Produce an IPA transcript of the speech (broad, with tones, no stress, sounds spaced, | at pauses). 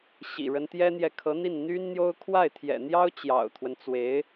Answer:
ɕ ḭ˨˩ ɻ ə˦ n t̪ j ɛ˥ n̪ j ɛ˨ kʰ ɤ˧˥ n̪ i˥˩ n n̪ y˥ n n̪ j o˥ ʊ̯ kʰ w a˥˩ ɪ̯ t̪ʰ j ɛ̰˨˩ n̪ j ɑ˥ ʊ̯ t͡ɕ j ɑ̰˨˩ ʊ̯ t̪ʰ w ə˦ n t͡s w e˧˥ ɪ̯